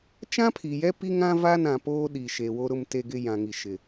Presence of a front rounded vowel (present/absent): absent